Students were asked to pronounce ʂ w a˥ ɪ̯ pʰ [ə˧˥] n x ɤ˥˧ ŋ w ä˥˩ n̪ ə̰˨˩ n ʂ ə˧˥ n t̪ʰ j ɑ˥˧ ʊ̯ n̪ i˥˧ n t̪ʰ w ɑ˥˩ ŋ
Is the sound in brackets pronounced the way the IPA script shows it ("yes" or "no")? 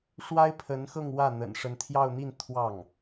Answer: yes